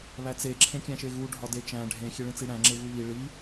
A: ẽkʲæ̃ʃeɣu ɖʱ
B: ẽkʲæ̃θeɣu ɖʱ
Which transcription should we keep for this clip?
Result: A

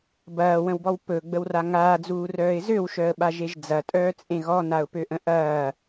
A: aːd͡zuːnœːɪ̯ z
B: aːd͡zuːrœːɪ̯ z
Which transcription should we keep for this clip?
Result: B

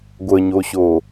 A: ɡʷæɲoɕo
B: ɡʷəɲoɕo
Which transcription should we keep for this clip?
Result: B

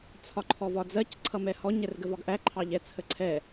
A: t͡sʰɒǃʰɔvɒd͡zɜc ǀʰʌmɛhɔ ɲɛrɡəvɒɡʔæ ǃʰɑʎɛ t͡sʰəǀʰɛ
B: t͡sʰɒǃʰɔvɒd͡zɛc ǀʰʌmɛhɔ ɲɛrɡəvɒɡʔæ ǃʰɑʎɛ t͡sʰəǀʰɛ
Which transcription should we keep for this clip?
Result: A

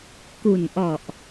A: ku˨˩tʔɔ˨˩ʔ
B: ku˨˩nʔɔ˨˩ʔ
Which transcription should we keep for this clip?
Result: B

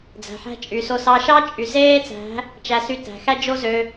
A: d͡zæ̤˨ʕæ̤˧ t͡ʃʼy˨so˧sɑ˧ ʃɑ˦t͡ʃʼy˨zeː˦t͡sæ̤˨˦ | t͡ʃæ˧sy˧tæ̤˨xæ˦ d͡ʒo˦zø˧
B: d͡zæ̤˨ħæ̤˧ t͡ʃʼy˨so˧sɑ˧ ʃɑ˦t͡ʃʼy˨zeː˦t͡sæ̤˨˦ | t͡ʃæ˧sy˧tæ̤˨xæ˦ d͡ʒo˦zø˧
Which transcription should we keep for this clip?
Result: B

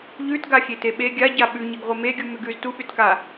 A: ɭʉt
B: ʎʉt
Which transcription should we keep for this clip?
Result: B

